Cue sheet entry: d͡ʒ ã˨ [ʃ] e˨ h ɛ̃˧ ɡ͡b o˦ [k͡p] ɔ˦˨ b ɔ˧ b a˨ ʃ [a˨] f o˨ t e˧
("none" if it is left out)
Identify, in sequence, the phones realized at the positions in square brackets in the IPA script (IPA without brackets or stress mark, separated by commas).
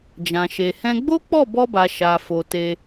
ʃ, k͡p, a˨